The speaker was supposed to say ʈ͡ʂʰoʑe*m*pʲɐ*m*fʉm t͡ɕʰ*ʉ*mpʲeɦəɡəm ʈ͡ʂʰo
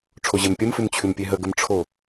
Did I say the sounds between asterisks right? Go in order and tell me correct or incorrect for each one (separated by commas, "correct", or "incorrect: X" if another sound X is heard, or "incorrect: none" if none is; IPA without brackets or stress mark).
correct, correct, correct